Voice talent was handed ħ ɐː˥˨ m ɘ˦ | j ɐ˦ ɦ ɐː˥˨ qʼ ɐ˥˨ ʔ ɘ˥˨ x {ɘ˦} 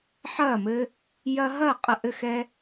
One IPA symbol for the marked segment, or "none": ɛ˦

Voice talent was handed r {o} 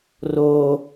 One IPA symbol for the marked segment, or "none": o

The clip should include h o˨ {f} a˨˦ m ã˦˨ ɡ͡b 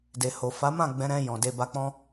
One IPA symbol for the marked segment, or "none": f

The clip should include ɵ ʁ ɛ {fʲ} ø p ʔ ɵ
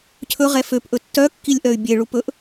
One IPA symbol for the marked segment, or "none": f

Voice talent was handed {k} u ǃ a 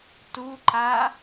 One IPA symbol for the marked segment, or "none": t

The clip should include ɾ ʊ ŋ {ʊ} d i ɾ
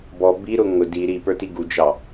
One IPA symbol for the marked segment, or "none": ʊ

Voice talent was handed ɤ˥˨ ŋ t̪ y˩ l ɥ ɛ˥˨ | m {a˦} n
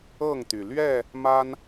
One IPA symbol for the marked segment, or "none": a˦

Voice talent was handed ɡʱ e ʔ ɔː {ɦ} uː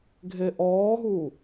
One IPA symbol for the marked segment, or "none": ɦ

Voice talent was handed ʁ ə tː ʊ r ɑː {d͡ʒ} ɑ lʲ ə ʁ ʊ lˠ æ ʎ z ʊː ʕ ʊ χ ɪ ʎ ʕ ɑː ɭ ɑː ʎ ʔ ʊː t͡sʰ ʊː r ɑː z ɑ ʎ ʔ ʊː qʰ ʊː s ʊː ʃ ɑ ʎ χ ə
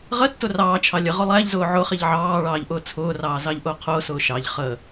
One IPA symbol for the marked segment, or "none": t͡ʃʰ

